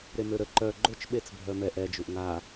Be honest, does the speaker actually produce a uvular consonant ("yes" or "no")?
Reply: no